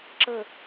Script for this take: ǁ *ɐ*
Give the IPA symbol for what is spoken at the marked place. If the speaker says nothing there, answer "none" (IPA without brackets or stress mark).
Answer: ə